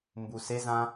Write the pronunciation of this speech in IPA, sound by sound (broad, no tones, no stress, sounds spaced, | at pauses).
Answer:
m b u s e z ã